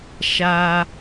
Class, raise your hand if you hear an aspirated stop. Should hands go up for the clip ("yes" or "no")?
no